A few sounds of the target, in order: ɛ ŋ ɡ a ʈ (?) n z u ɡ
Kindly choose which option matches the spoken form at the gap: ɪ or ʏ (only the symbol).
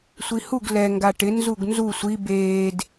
ɪ